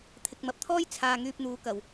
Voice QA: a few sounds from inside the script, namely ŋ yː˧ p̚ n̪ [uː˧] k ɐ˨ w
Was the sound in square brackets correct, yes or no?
no